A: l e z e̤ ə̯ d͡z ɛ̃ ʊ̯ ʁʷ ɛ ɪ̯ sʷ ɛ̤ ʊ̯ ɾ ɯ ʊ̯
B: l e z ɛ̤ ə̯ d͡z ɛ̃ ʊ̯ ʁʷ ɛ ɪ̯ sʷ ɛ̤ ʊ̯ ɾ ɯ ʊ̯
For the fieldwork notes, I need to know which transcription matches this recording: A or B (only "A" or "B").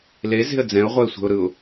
A